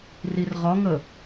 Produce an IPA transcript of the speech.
rirʁɒŋə

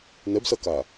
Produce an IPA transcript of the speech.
nɛbsɐka

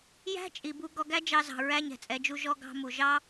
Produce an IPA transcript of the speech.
jæ̤˦t͡ʃʼi˨ bu˧ ɡɔ˧ɡæ˦d͡ʒɑ˧zɑ̤˨ ɹæ˦ɲɛ̤˨t͡sʼɛ˧d͡ʒu˦ ʒɔ˧ɡɑ̤˧mu˨ʒɑ˦

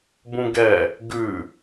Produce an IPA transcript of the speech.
bũɡɛ | ɡʉ

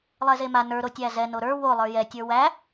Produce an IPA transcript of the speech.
lˠɛzema nə˞ɾo tʲæzɛ noɾə˞ wolˠə˞ jɛtʲə˞ wæ

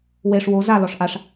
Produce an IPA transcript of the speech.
weʂ wo za lɔʂʔaʂ

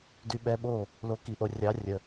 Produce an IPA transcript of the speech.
dy˧ɓɛ˧ɓo˦˨ | lo˨˦ki˨ʔo˨ rʲɑ˨˦rʲə˨

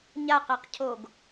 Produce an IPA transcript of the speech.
ɲaqɛqcʰoɡ

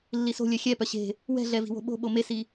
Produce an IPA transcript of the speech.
lːiso̤lʲœ xʲɛ pœɕe̤ | wɛ̤ɮɛ vi̤wo̤ɓo̤ ɓomesi

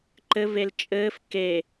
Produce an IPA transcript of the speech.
ǃɘvel t͡ʃʼɘːf ke

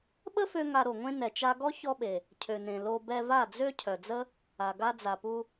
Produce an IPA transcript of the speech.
ɓə˦fø˧ ŋa˧ɾo˨ŋʷẽ˦ nɛ˨t͡ʃa˧ɡɔ˦ çɔ˦ɓe˨ | cʰø˨nẽ˨ lo˧ bɛ˧va˦˨d͡zø˦ cʰœ˨d͡zə˦ | a˨ɡa˧d͡za˨pu˧

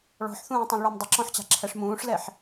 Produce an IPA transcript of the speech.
ɭɔ̤ħθũːtˤũlˠɭɔm dˤɪǁɔ̃ħt͡ɕa̤ǁʰɛʂ mũːʂlɛħ

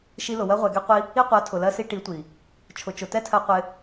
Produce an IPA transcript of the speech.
ʃi˧lʊ˨ wɜ˧ʁʷɛ˨ ɡɛ˧ qʷi˧ | i˦ qʷɜ˨˦tʰʊ˨lɜ˧si˧ ʈi˨˦tʷi˨ | t͡ʃʰʊ˨t͡ʃʊ˨ tɛ˦tʰɜ˧qʷɪ˧

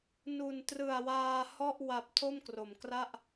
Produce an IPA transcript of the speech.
nu˨˩ntrɯ˨˩a̯waː˧ hɔ˥˩ʔwa˨˩p̚ tʰo˥˩mkro˩˦mkra˥˩ʔ

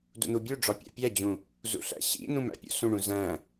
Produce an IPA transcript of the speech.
dṵn̪ubʲuɖ͡ʐɒ pʲæ̰pʲæd͡ʑũ | zṵɬæ̰ɕḭn̪ũm æ̰pʲṵsũɳũ zæ̃

